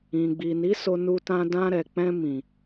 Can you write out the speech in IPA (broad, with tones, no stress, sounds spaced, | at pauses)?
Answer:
ĩ˨ ɡ͡b i˨ n i˨˦ s o˧ n u˧ t ã˧ d ã˧ ɾ ɛ˨ k͡p ɛ̃˧ m ĩ˨